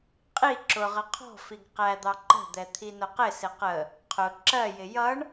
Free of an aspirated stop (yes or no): no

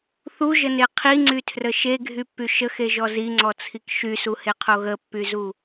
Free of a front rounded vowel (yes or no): no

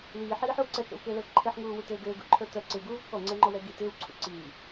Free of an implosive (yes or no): yes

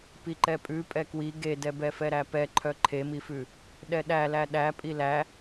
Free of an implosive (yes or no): no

